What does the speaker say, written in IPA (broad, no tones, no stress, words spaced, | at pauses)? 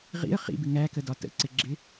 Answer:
ʁḭə̯ χḭbɪ ŋækədɒ tə̰ǀɪɡ͡ǁɪ